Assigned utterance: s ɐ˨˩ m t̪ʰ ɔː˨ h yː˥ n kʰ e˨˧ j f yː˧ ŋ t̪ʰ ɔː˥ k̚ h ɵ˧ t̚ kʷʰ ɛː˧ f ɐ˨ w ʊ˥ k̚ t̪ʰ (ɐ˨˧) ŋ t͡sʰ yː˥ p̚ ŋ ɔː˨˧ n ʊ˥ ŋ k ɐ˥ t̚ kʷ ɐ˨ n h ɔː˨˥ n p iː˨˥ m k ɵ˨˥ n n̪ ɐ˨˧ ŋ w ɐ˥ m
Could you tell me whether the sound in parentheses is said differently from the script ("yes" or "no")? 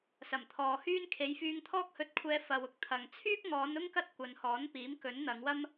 yes